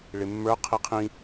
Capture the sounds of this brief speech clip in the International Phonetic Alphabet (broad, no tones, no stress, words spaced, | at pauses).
ɭɪmːə˞ qʰiqʰĩ